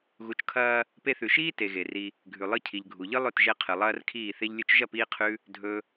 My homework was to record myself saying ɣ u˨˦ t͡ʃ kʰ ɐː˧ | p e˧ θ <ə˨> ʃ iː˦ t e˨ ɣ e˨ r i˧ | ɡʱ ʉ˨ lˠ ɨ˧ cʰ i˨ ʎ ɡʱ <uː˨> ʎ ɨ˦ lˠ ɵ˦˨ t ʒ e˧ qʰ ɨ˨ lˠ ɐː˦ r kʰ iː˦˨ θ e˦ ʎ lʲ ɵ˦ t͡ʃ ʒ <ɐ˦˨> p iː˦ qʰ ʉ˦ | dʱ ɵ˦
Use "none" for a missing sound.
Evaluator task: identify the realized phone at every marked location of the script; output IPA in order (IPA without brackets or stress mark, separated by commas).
ʉ˨, u˨, ɐ˦˨